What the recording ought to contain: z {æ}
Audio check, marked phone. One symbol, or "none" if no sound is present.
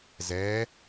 ɛ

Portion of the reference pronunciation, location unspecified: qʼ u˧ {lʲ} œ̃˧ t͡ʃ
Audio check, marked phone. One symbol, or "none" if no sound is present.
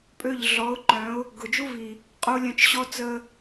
lʲ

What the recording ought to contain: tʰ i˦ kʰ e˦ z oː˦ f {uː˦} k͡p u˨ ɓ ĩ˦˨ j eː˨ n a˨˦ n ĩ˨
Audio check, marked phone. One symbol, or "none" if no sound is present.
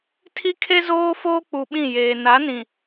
oː˦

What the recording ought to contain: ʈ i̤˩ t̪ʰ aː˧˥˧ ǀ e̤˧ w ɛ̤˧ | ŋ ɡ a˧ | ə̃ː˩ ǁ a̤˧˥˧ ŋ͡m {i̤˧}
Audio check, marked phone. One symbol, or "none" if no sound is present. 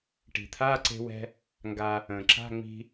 i̤˧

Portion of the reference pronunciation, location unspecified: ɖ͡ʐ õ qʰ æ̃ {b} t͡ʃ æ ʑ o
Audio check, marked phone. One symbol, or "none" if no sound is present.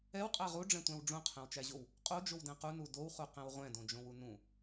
w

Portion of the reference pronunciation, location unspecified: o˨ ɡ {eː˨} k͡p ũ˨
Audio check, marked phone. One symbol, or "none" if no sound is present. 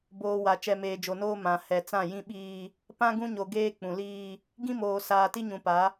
eː˦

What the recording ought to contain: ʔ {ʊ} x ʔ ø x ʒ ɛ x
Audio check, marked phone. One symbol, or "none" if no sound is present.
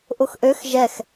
ʊ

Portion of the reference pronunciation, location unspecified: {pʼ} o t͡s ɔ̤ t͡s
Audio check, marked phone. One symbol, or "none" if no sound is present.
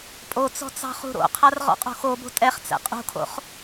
pʼ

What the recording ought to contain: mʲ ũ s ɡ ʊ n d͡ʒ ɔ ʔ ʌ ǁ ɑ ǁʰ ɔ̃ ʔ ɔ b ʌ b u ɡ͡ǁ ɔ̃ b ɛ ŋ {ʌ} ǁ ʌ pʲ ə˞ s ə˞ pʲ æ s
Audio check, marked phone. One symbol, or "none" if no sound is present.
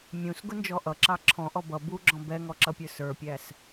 ɔ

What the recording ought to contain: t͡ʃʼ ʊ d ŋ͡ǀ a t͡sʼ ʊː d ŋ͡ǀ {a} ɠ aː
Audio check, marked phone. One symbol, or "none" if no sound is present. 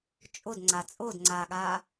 aː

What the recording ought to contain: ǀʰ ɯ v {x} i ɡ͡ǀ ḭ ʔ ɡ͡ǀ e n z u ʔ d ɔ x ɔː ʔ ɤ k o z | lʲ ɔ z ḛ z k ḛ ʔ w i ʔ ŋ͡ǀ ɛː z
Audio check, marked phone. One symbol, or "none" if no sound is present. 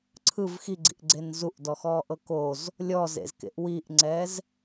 x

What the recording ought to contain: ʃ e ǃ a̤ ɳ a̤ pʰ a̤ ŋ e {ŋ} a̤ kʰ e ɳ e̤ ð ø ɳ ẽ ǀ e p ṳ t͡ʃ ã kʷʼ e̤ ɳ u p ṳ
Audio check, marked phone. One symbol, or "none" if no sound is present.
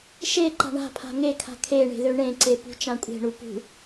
kʰ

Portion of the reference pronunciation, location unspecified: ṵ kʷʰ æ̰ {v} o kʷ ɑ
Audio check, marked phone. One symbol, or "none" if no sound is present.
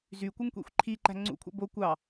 b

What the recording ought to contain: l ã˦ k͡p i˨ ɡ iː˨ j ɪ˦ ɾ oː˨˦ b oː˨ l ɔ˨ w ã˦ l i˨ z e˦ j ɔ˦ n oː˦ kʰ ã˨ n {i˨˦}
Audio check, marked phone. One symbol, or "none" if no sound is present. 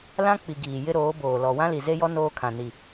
i˨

